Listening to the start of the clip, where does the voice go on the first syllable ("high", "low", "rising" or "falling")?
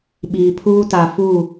low